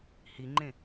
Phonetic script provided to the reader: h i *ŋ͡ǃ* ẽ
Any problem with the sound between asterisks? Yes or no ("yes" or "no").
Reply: no